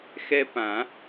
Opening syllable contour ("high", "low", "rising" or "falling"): high